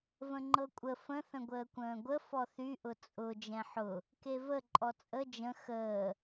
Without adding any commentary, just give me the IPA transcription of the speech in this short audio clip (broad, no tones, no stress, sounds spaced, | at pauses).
v ə̃ ŋ͡ǃ ɤ kʷʼ ə f ə̃ θ ə̃ ɡʷ əː kʷ ə̃ː ɡʷ ə f ɔ θ y ʔ ʊ t͡sʼ ʊ d͡ʒ ɛ̃ ħ ʊ | k e v ə ǃʼ ɔ t͡sʼ ə d͡ʒ ə̃ x əː